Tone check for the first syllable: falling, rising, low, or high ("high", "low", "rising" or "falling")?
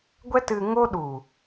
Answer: high